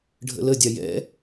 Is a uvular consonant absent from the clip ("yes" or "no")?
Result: yes